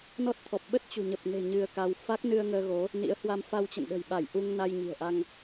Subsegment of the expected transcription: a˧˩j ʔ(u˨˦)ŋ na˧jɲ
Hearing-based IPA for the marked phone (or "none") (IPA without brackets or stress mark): u˧